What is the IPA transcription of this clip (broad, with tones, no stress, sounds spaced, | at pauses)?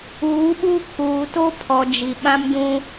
uː˨˦ ɓ u˦ kʰ uː˨ t o˦ pʰ ɔ˨ d͡ʒ i˨ ɓ ã˦ m d ũ˦